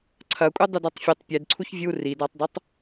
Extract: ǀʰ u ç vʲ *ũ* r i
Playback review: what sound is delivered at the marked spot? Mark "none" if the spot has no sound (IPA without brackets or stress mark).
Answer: u